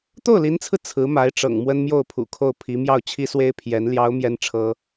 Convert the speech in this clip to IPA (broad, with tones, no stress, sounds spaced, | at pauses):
t̪ o˥˩ ʊ̯ l i˧˥ n t͡sʰ ɹ̩˧ t͡sʰ ɹ̩˧˥ m a˧˥ ɪ̯ ʈ͡ʂ ɤ̰˨˩ ŋ m w ə˥ n m j o˥˩ ʊ̯ pʰ ṵ˨˩ kʰ o˥˩ ʊ̯ pʰ i˧˥ m j ɑ˥˩ ʊ̯ t͡ɕʰ i˥ s w e˥ ɪ̯ pʰ j ɛ˧˥ n l j ɑ˧˥ ʊ̯ m j ɛ˥ n ʈ͡ʂʰ ɤ˥